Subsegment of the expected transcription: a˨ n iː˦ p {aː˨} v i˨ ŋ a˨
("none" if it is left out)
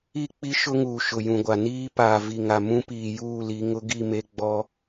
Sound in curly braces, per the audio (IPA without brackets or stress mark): aː˨